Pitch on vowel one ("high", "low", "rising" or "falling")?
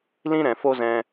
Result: high